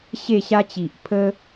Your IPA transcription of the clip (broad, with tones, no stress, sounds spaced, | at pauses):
ɕ e˥˧ ɕ a˦ t͡ɕ i˨ ʔ pʰ ə˦